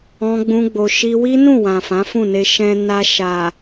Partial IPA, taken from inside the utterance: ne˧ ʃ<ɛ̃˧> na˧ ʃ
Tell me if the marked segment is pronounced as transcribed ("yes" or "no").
yes